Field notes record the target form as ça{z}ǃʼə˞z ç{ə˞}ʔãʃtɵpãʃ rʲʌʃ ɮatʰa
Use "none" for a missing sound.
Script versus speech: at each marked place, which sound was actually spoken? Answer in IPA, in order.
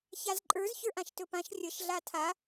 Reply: z, ə˞

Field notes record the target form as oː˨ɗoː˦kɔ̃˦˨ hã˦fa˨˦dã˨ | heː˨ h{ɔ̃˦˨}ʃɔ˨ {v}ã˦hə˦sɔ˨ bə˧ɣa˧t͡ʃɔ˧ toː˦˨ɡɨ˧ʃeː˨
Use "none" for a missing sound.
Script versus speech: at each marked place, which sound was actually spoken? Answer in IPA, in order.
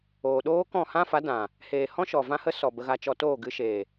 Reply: ɔ̃˦, v

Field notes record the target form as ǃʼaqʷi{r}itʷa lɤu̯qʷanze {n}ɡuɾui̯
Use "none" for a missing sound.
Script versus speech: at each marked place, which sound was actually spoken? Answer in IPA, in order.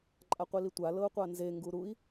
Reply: l, ŋ

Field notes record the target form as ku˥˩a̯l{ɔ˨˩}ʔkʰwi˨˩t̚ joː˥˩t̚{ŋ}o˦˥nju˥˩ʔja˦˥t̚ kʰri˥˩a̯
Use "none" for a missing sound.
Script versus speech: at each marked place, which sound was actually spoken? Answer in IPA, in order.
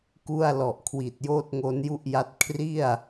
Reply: ɔ˨˩, ŋ

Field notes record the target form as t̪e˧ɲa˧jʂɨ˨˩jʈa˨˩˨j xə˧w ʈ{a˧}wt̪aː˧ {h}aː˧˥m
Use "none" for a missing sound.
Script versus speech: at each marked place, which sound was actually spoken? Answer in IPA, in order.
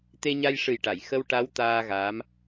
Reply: a˧˥, ɣ

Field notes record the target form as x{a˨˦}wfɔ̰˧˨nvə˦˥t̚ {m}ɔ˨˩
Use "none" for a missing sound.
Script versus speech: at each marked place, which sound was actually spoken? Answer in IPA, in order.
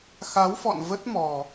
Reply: a˨˦, m

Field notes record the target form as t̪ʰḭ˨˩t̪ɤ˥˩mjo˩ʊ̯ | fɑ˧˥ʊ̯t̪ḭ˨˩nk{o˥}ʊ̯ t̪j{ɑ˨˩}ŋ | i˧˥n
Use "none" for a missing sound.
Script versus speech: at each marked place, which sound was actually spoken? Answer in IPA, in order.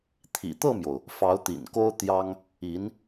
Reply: o˥, ɑ˥

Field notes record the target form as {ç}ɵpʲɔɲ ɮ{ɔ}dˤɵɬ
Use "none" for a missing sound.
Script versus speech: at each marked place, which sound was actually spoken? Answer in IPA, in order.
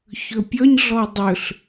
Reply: ç, ɔ

